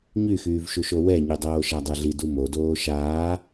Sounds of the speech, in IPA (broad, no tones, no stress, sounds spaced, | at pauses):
ɲ y x yː v ʃ u ʃ o w ɛ ɲ y dˤ oː ʃ æ dˤ ɛ ɮ i d u m o d oː ʃ aː